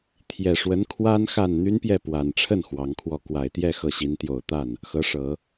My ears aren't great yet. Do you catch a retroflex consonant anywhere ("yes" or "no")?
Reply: yes